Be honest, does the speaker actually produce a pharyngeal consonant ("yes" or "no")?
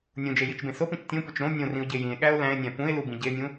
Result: no